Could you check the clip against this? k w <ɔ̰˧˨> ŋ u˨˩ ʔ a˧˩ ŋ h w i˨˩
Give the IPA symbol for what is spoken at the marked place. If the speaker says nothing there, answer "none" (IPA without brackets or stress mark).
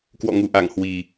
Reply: ɔ̰˧˨